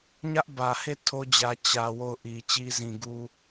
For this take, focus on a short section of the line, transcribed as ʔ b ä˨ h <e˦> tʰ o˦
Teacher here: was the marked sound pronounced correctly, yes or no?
no